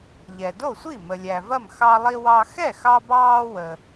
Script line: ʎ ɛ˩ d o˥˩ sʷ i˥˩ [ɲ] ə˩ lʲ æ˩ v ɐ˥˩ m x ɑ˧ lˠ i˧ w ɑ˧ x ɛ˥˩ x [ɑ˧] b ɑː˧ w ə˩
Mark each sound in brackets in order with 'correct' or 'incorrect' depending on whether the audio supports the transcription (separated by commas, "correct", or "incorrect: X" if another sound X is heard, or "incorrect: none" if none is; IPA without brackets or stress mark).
incorrect: m, correct